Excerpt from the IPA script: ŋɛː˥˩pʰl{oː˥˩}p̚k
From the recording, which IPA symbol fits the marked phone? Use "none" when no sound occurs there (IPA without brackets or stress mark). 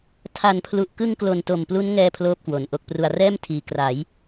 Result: oː˥˩